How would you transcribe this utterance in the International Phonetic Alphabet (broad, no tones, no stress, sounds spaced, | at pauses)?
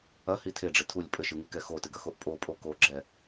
ɐ h i tʰ e ɖ͡ʐ ɘ tʰ u lʲ pʼ ɘ ʃ ɨ ŋ i k ɛ x o t ɨ ɡ ɐ x o ʔ pʼ o pʼ o k o ɡ͡ǁ ɛ